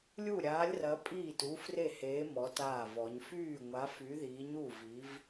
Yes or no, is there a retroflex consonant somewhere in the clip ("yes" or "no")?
no